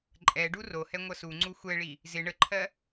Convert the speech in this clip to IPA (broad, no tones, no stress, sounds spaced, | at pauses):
ǃʼ ɛ ɖ u r o h ɛ ŋʷ ʌ s u ŋ͡ǀ u xʷ ɛ ɭ i | z ɪ ɳ ə ǃʰ ɜ